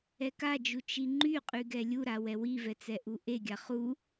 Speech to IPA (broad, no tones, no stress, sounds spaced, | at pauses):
ɛ k a d͡ʒ u t͡ʃ i ŋ͡ǃ y qʼ y ɡ ɛ lʲ u ɾ a w ɛ w i v ɛ t͡s ɛ ʔ u ʔ e ɡʲ a χ u